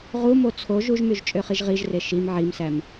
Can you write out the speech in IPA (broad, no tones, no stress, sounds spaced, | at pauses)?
ʁ u m o t͡sʰ o ʒ u ʒ m y ʒ t͡ʃʼ ø χ i ʒ ʁ i ʒ r e ʃ i m ʕ i m s æ m